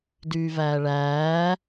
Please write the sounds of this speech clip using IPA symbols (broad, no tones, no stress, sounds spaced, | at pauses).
d yː v æː ɭ æː